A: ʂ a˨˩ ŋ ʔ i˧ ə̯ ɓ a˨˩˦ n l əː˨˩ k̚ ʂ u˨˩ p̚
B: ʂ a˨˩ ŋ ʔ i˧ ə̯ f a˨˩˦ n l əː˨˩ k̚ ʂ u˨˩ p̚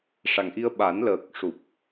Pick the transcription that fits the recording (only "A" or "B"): A